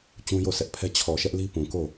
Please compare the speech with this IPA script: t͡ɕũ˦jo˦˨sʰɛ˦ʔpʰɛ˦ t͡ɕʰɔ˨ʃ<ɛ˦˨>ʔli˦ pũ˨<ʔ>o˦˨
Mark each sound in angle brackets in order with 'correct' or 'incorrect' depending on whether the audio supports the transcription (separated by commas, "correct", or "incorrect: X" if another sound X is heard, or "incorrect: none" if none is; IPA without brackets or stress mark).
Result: incorrect: ɛ˦, incorrect: k